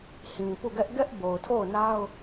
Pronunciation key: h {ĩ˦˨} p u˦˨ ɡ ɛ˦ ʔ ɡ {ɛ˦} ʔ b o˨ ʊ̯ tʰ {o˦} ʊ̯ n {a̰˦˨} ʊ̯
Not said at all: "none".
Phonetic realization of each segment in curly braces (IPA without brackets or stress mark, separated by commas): ĩ˨, ɛ˦, o˦˨, a˦